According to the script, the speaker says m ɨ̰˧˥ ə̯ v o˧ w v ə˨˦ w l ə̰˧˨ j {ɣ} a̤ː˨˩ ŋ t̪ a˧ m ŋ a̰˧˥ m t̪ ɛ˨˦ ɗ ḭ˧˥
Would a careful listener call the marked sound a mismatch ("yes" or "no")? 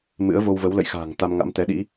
yes